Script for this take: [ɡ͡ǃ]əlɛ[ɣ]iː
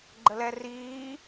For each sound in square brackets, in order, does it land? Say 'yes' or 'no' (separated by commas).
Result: yes, no